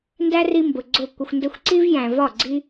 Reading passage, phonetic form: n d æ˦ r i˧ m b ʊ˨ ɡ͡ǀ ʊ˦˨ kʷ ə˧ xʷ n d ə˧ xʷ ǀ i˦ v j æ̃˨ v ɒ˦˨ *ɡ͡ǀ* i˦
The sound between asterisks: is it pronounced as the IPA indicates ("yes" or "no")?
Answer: yes